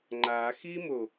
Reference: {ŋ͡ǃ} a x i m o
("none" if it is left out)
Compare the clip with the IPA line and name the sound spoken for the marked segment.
ŋ͡ǃ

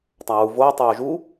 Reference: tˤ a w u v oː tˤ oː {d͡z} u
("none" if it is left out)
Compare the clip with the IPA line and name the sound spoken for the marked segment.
ʒ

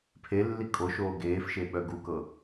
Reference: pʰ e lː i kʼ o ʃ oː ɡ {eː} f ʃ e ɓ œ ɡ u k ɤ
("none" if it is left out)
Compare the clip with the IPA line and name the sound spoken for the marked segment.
eː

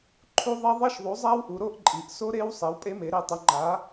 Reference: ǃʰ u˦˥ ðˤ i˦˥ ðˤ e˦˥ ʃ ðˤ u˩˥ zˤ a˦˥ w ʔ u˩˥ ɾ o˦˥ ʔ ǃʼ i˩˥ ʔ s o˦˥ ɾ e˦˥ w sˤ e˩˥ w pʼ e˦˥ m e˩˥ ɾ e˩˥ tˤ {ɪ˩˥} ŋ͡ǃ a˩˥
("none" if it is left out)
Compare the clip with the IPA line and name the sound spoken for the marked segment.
ɪ˩˥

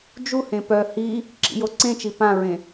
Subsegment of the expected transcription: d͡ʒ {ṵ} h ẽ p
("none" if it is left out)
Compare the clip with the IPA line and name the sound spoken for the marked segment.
u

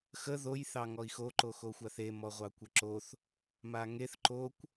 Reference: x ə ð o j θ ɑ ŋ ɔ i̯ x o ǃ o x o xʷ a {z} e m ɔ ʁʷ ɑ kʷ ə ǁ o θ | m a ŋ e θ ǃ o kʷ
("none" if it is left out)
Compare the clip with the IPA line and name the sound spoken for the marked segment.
θ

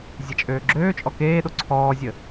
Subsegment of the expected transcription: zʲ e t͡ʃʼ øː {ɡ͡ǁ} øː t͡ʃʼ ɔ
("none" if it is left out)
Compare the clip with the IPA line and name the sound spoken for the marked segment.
ɡ͡ǁ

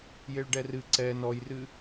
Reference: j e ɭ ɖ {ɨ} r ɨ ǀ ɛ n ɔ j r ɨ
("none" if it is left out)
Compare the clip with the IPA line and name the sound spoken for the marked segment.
ɛ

